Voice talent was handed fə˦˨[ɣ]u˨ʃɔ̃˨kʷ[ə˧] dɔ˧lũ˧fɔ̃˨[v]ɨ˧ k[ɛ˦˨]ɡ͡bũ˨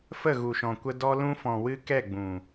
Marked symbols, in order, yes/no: yes, yes, no, yes

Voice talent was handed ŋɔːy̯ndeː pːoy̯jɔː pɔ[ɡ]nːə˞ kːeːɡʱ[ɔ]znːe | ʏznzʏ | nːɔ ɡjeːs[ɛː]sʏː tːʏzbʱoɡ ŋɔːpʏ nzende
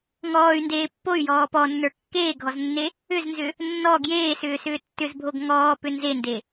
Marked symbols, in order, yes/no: no, yes, no

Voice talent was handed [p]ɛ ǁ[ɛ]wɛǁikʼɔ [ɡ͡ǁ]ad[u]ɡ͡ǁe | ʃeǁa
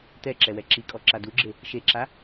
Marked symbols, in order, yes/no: no, yes, no, yes

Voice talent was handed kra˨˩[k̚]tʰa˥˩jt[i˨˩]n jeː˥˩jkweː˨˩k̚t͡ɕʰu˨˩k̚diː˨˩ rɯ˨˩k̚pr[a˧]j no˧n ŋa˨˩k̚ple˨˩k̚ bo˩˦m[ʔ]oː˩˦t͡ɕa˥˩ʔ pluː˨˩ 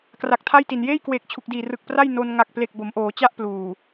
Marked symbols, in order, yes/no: yes, yes, no, yes

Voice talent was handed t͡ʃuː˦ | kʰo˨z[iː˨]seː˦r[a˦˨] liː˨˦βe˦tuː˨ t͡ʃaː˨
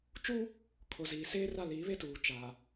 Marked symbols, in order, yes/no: yes, yes

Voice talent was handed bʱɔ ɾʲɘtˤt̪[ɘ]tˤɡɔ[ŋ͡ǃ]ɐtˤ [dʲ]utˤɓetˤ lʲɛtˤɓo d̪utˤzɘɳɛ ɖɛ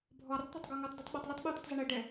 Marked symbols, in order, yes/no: no, no, no

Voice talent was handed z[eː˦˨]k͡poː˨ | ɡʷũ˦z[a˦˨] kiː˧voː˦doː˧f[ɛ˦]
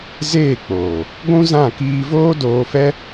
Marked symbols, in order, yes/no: yes, no, yes

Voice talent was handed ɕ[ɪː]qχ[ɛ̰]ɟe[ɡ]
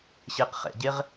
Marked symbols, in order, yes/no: yes, yes, no

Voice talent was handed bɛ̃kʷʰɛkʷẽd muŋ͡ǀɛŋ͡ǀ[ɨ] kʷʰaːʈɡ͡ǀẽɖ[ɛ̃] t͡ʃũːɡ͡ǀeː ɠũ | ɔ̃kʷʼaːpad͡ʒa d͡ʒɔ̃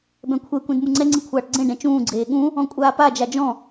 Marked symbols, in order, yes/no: yes, yes

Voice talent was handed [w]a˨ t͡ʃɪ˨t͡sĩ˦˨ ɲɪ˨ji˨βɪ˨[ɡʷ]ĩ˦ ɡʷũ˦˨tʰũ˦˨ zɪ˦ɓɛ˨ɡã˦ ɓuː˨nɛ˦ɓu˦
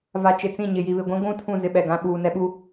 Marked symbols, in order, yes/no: no, yes

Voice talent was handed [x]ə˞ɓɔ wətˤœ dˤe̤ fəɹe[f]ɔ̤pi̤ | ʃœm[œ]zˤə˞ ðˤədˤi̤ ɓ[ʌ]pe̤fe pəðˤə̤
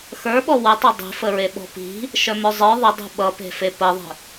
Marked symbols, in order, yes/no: yes, no, yes, yes

